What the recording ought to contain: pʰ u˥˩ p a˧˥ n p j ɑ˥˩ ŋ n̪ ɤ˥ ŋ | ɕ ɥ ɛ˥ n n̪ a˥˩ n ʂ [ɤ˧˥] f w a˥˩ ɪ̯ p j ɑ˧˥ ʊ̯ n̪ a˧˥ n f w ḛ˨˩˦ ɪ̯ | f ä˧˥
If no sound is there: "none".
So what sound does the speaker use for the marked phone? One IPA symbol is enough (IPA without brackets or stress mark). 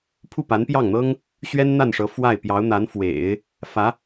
ɤ˧˥